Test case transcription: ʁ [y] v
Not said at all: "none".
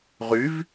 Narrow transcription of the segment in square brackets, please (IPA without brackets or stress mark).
y